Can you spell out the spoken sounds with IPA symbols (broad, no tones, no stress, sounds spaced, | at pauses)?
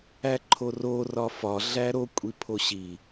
æ ǃʰ o r o r ɒ f ɒ ɮ æ ɾ o kʷʼ i pʰ o ɕ i